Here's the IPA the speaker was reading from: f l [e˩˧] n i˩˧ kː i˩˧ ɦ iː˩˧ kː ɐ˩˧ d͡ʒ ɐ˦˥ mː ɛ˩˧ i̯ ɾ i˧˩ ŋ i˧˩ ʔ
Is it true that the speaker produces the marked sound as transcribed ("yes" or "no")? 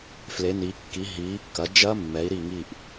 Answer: yes